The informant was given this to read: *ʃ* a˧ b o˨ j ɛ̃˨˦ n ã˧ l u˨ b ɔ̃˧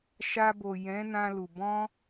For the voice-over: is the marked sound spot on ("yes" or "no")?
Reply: yes